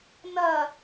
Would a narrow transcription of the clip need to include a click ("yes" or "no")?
no